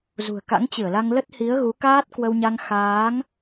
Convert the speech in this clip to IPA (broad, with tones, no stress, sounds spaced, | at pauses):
z ṳ˨˩ ə̯ k a̰˧˥ ŋ t͡ɕ ɨ˧˩ ə̯ l a˧ ŋ l ə˦˥ t̚ h i˨˦ ə̯ ɣ u˨˦ k aː˦˥ t̚ k w ə˧ w ɲ a˧ ŋ x aː˨˦ ŋ